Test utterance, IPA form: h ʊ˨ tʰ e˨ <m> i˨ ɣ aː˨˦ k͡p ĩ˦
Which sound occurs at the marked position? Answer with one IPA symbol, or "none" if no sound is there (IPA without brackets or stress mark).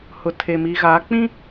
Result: m